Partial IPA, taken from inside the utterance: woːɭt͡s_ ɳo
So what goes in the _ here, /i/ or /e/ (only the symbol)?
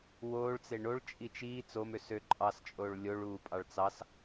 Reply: e